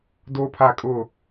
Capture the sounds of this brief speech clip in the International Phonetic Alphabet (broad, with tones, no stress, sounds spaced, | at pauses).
d o˦ pʰ a˦˨ kʼ ʊ˦˨